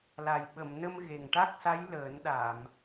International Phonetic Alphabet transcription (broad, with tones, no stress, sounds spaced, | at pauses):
l a˨˩ j ɓ ə˨˩˨ m n ə˧ m ɣ e˨˩ ŋ ʈ a˦˥ k̚ s a˧˥ j l əː˨˩˦ n ɗ a˨˩˨ m